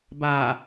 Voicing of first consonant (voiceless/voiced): voiced